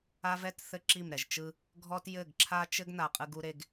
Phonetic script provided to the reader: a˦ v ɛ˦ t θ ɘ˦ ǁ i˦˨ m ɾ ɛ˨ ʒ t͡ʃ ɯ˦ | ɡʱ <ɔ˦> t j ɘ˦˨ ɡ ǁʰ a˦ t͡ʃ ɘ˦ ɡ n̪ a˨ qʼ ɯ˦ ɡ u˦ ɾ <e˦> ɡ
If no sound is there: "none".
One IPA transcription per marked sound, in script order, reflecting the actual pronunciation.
ɔ˦, e˦

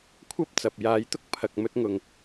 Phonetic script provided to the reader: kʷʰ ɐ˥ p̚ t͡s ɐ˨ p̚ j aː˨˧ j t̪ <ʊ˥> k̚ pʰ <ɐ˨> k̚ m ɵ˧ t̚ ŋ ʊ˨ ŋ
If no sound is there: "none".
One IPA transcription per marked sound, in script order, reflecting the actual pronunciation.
ʊ˥, ɐ˨

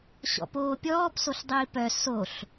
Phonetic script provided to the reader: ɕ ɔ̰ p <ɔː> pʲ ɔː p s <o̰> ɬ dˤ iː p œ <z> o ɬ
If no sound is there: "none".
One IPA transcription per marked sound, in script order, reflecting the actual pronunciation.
oː, o, s

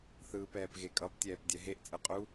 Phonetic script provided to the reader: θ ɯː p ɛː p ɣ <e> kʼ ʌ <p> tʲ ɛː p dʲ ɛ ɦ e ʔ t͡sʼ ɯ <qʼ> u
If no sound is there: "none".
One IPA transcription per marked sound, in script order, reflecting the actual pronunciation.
e, p, qʼ

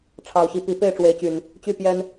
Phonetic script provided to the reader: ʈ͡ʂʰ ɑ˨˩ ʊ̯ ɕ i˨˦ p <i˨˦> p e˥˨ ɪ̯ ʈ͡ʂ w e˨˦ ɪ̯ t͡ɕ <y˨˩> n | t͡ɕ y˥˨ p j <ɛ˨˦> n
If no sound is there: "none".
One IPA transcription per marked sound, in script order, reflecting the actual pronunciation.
i˨˦, y˨˩, ɛ˦

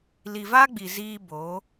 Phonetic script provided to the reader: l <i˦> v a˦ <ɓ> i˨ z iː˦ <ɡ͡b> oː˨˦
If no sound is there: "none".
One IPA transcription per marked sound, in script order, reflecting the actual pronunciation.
i˨, ɡ͡b, b

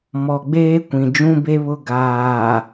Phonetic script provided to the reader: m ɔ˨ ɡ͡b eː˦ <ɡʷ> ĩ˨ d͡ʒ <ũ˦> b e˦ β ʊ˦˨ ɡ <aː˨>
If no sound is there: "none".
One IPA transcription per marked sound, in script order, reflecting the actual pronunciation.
kʷ, ũ˦, aː˨

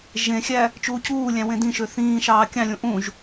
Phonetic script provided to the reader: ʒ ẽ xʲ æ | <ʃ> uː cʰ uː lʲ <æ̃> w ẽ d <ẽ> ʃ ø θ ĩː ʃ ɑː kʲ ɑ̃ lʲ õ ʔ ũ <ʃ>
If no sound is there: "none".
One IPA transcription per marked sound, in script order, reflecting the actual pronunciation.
t͡ʃ, æ̃, ĩ, ʒ

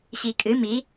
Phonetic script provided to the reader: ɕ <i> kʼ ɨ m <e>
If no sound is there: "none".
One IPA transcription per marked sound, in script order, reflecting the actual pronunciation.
i, i

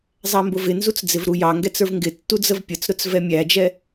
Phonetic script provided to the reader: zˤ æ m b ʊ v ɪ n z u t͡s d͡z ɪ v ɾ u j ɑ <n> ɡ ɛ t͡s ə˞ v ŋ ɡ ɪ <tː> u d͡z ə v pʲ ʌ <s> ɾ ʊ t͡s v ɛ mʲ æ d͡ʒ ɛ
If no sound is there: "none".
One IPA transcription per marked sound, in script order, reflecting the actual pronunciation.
ŋ, tː, t͡s

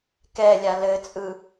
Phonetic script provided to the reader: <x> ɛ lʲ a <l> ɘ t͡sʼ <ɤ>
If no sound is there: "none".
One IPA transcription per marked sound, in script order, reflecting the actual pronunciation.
k, l, ɯ

